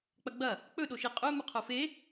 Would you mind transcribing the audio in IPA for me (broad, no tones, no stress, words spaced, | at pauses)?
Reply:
k͡pɐɡ͡bɐ | k͡pɵ ɗoʃi qʼɵ mɨqʰofe